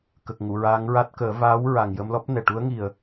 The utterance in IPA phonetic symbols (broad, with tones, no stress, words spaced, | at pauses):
kə˨˩k̚ŋu˨˩˨ɹaː˧˥ŋɹa˦˥t̚ kəː˨˩˦ vaː˧˥w ɹa˨˩ŋjə˧mlɔ˦˥p̚ nɛ˨˩ʈu˧˥ə̯ ŋi˨˩ə̯